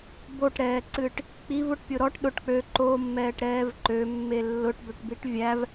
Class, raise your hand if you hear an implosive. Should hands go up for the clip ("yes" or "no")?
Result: yes